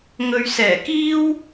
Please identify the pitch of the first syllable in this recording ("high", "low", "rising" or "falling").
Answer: low